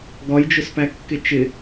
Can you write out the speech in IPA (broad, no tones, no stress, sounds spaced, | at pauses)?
ɡ ɒ j d͡ʒ ʊ s p æ kː ɪ t͡ʃ ɪ